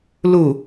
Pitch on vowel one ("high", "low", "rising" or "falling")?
low